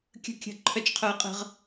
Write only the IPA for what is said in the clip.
kʲ ə̤˥˨ kʲ ə̤˥˨ ǃʰ œ˥ t͡ʃ qʰ œ˥ ə̯ qʼ ə̤˥ ʁ

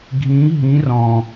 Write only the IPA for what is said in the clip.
ɡʱ ĩ ɦ ĩ r ɔ̃

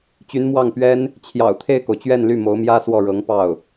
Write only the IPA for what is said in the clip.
t͡ɕ y˧˥ n m w ɑ˥˩ ŋ p ɥ ɛ˥ n | t͡ɕʰ j ɑ̰˨˩ ʊ̯ t̪ʰ e˥˩ ɪ̯ k o˩ ʊ̯ t͡ɕ ɥ ɛ˥˧ n l y˥˩ m o˧˥ ʊ̯ m j ä˥ s w ɔ˥˩ ɻ ɤ˧˥ ŋ p ɑ˥˩ ʊ̯

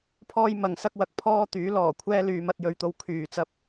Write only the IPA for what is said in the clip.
pʰ ɔː˥ j m ɐ˨˧ ŋ s ɐ˥ k̚ w ɐ˧ k̚ pʰ ɔː˥ t̪ yː˨˥ l ɔː˨˩ kʷʰ ɛː˥ l yː˨˧ m ɐ˧ t̚ j ɵ˨˧ ɥ t̪ o˧ w kʰ yː˨ t͡s ɐ˧ p̚

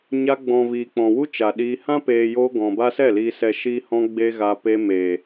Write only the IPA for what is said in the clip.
ɲ a˧ ɡ͡b ɔ̃˨ v iː˨ k͡p ɔ̃˨ w u˦ t͡ʃ a˨ ɗ iː˧ h ã˦ p eː˨ j oː˧ ɡ ɔ̃˨ b a˦ s ɛ˦˨ l iː˨ s ɛ˨ ʃ iː˦ h ɔ̃˦ ɡ͡b e˦ ɣ a˧ p e˧ m e˨

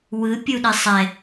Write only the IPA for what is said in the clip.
w ɯ pʲ u ɗ e sˤ ɛ

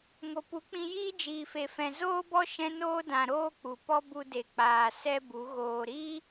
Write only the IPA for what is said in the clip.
ŋ o˨ p u˨˦ k͡p ĩ˧ j iː˦ d͡ʒ iː˨ f e˨ f ɛ̃˨ z oː˧ b ɔ˧ ʃ ɛ̃˧ n oː˧ d ã˨ ɾ oː˦ k͡p u˨ p ɔ˦ b u˧ d e˨ k͡p aː˨ s ɛ˦ b u˨˦ ɣ oː˨ ɾ i˦

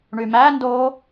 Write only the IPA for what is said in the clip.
ɳ y m æ n d o

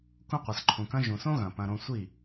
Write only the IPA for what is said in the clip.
k ũ˦ qʷ ɘ˨ s ǃʰ ũ˨ k ɐ̃˦ ʒ ũ˨ s õ˦ ɣ ɐ̃˨ p ɐ̃˧ ɾ õ˧ sʷ i˦˨

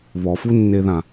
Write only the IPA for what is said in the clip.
β ɔ f u nː e ð ã

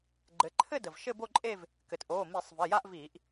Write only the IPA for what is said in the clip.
ɡ͡ǃ ɘ˩˧ ǃʰ ɘ˥˧ d ə˩ v ʃ ɘ˥˧ b o˥˧ ǃʼ e˥˧ v | k ɘ˩ t ʔ oː˩˧˩ m i˧˩˧ sˤ v ɘ˩˧˩ j a˥˧ ʔ v iː˧˩˧ ʔ

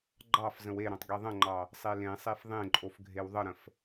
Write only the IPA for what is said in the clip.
ɡ͡ǃ ɑ f z ə̃ w e ɾ õ tˤ ɡ e ðˤ ə̃ ŋ͡ǃ ɑ | sˤ e l ẽ sˤ e f ðˤ ẽ ǃʼ o f ɡʱ e w ðˤ ə ɾ ə̃ f

